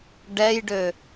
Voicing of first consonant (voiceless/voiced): voiced